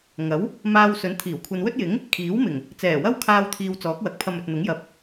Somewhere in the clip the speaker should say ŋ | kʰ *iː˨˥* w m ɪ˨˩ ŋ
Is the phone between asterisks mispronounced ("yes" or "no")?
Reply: no